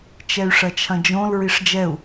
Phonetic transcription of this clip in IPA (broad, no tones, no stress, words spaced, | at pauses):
t͡ʃɛy̯ʂɐt͡ʃʰɐ̃d͡ʒõl ɹiʂd͡ʒɛu̯